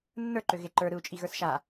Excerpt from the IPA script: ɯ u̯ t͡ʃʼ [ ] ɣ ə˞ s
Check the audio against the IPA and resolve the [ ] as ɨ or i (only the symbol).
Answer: i